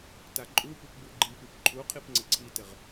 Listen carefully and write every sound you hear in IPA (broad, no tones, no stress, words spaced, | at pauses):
taǃʼupʉp bʉɡ͡ǃipip ǃʰuqʰip ŋ͡ǀɘǀʰitɘʁ